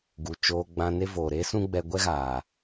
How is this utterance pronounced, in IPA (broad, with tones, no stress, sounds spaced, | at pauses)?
ɡ u˨ t͡ʃ oː˧ ɡ͡b ã˧ n e˦ v oː˨ ɾ e˦ s ũ˦ ɡ͡b ɛ˧ ɡʷ ɛ˦ ɣ aː˨